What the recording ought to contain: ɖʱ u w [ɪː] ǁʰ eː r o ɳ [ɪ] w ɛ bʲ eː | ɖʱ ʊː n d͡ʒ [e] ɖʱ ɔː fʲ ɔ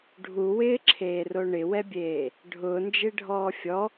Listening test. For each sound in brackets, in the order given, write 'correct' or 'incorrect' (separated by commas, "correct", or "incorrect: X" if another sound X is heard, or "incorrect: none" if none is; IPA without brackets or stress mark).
correct, correct, correct